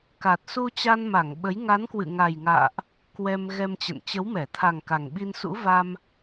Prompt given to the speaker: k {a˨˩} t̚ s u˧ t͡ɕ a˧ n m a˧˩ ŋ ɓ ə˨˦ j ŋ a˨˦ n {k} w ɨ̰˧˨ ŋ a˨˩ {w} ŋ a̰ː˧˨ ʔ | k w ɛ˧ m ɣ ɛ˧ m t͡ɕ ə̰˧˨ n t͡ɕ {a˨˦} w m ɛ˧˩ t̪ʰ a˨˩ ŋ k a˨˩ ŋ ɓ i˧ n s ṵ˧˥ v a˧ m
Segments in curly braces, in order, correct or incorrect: correct, correct, incorrect: j, incorrect: ə˨˦

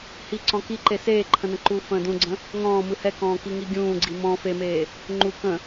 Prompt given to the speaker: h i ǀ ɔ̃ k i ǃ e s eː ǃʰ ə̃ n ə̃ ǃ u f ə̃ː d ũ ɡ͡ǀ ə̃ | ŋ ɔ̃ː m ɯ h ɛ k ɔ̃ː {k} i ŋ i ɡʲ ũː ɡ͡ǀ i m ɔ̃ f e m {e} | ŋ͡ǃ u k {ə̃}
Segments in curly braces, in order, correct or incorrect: correct, incorrect: eː, correct

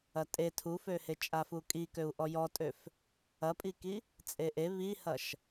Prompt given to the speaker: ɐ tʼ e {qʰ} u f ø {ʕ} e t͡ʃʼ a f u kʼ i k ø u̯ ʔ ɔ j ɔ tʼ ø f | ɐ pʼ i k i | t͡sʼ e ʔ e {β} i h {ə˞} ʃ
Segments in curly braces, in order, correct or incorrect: incorrect: tʰ, incorrect: h, correct, incorrect: ɐ

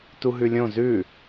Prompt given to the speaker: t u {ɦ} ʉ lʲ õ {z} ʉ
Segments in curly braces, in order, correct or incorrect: correct, correct

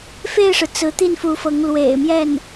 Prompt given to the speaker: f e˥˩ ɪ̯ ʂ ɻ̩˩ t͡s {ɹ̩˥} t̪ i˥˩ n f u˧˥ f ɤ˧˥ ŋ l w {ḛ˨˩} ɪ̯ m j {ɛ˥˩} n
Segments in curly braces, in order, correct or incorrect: incorrect: ɹ̩˧˥, correct, correct

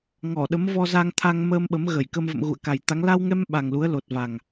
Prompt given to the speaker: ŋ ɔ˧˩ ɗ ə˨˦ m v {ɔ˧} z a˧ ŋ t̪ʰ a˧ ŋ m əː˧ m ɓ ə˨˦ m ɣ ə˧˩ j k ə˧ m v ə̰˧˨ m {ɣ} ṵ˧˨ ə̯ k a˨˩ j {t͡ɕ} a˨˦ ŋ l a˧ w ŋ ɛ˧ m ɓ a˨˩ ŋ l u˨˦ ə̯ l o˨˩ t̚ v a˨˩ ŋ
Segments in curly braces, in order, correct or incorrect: correct, correct, incorrect: t̪

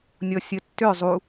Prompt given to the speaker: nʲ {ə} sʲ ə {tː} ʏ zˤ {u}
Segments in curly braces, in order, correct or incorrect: incorrect: ɔ, correct, correct

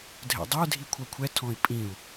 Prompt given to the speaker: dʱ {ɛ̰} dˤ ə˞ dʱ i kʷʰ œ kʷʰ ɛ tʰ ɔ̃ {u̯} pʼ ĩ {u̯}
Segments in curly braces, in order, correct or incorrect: correct, incorrect: i̯, correct

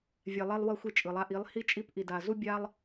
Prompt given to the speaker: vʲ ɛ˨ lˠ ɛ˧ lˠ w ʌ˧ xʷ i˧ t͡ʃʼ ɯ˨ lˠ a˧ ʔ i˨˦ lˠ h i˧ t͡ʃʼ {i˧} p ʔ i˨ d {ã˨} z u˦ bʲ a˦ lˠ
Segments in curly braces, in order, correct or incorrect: correct, incorrect: a˨

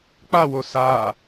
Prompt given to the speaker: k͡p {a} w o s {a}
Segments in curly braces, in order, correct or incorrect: correct, correct

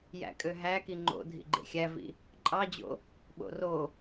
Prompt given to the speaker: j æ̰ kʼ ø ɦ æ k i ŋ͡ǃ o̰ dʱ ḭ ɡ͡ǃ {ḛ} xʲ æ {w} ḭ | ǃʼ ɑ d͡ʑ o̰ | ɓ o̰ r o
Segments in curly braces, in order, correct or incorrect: correct, incorrect: v

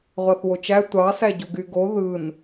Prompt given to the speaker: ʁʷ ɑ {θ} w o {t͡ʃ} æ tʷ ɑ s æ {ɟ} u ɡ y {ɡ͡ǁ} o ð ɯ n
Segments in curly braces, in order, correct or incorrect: correct, correct, correct, incorrect: ɡ

